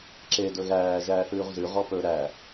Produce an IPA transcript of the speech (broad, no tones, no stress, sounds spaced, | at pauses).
ǁ e d ɵ ɣ æː ʒ æː θ ʉː ʁ z ʉ ʁ ɔ p ɵ ɾ æ